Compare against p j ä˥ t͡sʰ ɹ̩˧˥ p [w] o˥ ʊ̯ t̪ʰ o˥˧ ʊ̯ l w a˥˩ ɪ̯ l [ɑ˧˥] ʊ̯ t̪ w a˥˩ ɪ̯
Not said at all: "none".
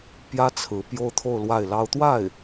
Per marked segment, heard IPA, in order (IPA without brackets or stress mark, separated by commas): j, ɑ˥